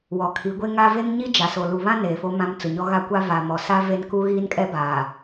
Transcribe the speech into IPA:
w ɔ˨ kʰ i˨˦ ɡʷ e˦ ŋ a˦ v e˦ ŋ ɲ i˦ d͡ʒ a˨ s o˨ l u˨ β ã˦ n eː˨ f o˦ m ã˦ m t͡s ʊ˨ ɲ ɔ˦ ɣ a˦ kʷ a˦ v a˨ m ɔ˨ s a˦ v e˦ n k u˦ ɣ iː˦ n kʼ ɛ˦ b aː˨

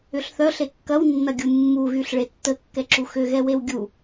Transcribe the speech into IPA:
ʏ ɬ θ œ ɬ e kː ɐ w nː ɐ ɡʲ u mː u ɣ y ɬ ɭ e tː ə kː ɛ ǁ u x ʏ ɣ ɛ w e w ɡʲ u

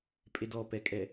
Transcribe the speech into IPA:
pʼ e d ɔ p ɛ kʼ ɛ

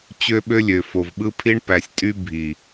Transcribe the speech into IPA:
t͡ɕ ø˦ ɓ ø˦ lʲ ø˨ f o˨ v ɓ ɯ˦ pʰ i˦ ɳ p æ˨ sʲ tʼ y˦ bʱ i˨

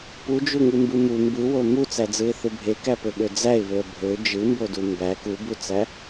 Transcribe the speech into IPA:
p u d͡ʒ u ŋ ɯ m b ɯ m u m b ɯ w o m u t͡s æ d͡z ɯ ɪ̯ θ ɯ bʱ e k æ p ø ɓ ø d͡z æ ɪ̯ β ø ə̯ bʱ ø d͡ʒ ɯ m b o d u m b æ k u b u t͡s æ

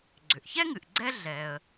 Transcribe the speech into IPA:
ɡ͡ǀ ʏ˩ ʔ ç ɛ˥ ŋ ɨ˩ ʔ ɡ͡ǀ ɛ˥ ɮ ɛ˩ ə̯

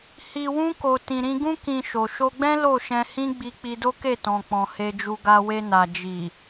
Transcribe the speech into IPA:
h i˨ w ũ˧ k o˨ t ĩ˨ ɾ ĩ˧ ɡ ũ˦ k ĩ˧ ʃ o˨ ʃ o˧ ɡ͡b ɛ̃˦ l o˦˨ ʃ ɛ̃˧ h ĩ˦ ɡ͡b i˧ k͡p i˧ d o˦ k e˦˨ t ɔ̃˨ k͡p ɔ̃˨ h e˧ d͡ʒ u˧ ɡ a˧ w e˧ n a˨ d͡ʒ i˨

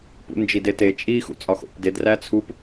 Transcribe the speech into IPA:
p ṵ n d͡ʒ i d e t e t͡ʃʼ i x ṵ t͡sʼ ɒ x o̰ p d e d r æ t͡sʰ u p

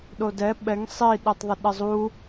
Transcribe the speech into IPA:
ɗ o d ɛ ɓ ɛ ŋ sˤ i ɗ e tˤ ðˤ ɪ ɗ ɪ zˤ u

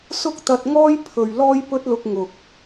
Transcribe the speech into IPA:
s ʊ˥ k̚ t̪ ɐ˧ t̚ ŋ ɔː˥ j pʰ ɵ˨ ɥ l ɔː˥ j p ɵ˥ t̚ l ʊ˧ k̚ ŋ ʊ˨ k̚

